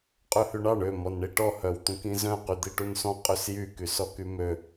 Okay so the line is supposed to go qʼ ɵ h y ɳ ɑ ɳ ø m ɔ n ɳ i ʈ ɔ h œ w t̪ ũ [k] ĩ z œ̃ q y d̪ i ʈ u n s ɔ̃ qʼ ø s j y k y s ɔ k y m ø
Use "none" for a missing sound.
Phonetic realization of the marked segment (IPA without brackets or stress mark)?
k